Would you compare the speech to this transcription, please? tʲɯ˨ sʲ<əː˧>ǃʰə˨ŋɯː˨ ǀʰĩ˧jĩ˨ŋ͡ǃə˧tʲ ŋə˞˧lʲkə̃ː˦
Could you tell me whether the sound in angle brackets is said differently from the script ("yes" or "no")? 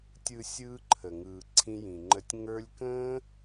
yes